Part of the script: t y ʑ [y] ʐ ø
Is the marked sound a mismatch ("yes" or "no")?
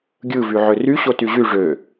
no